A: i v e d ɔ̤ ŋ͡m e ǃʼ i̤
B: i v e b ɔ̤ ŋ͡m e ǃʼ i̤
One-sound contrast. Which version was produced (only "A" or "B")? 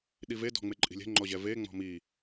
A